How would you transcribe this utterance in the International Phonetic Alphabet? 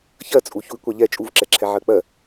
ç ɜ t͡sʼ u ç u i̯ kʷ a ʎ ɛ t͡ʃʼ u v ǁ ɛ ǁʰ ɛ ʕ ɜ k͡p ɜ

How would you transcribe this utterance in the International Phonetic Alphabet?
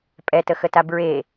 pʼ ɛ t ə x ə t a b ɹ e

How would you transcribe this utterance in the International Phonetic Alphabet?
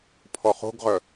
pʰ ɔ χ o̤ ɡ ʁ œ

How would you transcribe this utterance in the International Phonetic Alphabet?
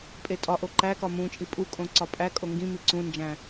pʼ e tʼ ɒ ʔ o ǃ æ k ɒ m ũ t͡ʃʼ i pʼ u kʼ õ ǀ ɒ pʼ æ kʼ o ŋ ɡ ĩ m i ǀ ũ n d͡ʒ æ̃

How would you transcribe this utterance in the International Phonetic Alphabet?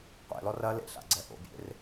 qʷ ḛ l ɔ r ɐ l ḛ ɬ a̰ ɡ͡ǀ ɛ ʔ o̰ bʲ ḛ r

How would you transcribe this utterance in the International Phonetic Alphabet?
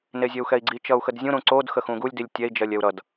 n e zʲ ɜ u̯ x ɛ i̯ ɡ͡ǀ i t͡ʃ ʌ u̯ x ə d zʲ ũ ɾ ũ ǀ o d x ə x ũ ɡ u lʲ d i lʲ tʲ ɛ i̯ d͡ʒ ɜ lʲ ɛ u̯ ɾ ʌ d

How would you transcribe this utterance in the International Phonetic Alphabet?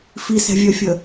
f i s ɛ̤ vʲ œ fʲ ə

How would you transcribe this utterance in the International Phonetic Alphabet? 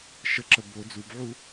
ʃ ə ǁ ə b o d͡z u b ʕ u

